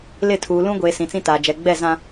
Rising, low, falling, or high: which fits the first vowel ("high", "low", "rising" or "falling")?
falling